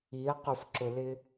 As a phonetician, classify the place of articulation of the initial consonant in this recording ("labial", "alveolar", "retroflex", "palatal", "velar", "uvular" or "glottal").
uvular